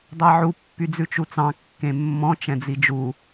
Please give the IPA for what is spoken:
dˤ æ ʕ u pː y d͡z ʉ t͡ʃ u t͡s ɑ̃ kː ẽ mː ɔ̃ t͡ʃ ɛ̃ d͡z i d͡ʒ u

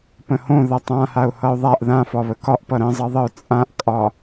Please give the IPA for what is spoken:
p ə̃ h õ ð ʌ tˤ ã h a ʊ̯ h ʌ ʊ̯ ðˤ a ʔ ð ã f ɒ β ə k ɒ ʔ p ʌ ɾ ə̃ zˤ ʌ ðˤ ə ʊ̯ t͡sʼ ã ʔ kʼ ɒ

